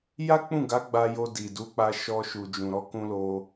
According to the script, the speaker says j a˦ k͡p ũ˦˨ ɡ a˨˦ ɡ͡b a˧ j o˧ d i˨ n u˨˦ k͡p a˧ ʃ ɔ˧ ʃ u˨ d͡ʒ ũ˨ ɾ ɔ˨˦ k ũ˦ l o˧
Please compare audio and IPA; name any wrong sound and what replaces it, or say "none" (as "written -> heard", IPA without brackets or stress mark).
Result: n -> d